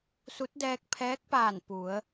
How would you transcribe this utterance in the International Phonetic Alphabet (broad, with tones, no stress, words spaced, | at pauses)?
su˧˥t̚dɛː˧k̚pʰɛː˧˥k̚paː˧˩n pu˩˧ə̯